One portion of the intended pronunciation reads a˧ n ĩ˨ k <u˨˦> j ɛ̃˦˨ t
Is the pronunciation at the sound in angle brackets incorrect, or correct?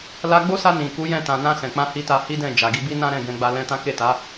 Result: correct